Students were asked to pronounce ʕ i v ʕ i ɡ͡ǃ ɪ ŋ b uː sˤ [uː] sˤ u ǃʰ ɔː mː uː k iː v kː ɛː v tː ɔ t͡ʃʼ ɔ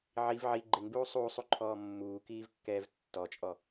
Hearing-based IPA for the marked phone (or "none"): uː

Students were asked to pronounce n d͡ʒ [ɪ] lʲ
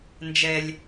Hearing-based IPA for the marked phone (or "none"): ɛ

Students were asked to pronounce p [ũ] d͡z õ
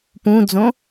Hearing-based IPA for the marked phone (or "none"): ũ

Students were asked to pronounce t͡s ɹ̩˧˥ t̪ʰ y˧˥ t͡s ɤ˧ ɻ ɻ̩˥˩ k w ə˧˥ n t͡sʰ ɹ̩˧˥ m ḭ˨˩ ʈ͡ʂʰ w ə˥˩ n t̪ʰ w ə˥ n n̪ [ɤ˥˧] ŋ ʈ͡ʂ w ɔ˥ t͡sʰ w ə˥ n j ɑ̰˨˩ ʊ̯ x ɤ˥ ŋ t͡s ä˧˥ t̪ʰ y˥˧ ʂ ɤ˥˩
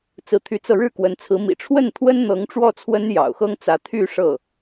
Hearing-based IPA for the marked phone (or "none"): ɤ˧˥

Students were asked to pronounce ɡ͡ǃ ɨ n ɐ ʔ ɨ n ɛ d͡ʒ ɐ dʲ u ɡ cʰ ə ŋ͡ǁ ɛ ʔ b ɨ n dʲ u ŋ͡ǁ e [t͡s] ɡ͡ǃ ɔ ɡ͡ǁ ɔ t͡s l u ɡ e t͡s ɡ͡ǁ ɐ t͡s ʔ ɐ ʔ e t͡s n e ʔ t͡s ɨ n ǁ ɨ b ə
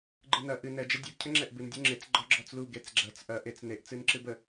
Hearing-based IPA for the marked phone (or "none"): t͡s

